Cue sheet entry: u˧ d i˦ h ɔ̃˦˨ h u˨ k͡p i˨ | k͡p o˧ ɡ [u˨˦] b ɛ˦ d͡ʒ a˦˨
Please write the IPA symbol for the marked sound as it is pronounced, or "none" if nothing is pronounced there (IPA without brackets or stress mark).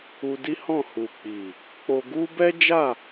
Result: u˦